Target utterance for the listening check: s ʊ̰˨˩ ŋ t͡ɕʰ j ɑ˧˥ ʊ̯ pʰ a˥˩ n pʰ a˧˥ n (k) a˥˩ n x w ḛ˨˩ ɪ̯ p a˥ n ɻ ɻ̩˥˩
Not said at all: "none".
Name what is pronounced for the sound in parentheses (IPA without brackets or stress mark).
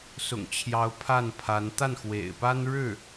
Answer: t̪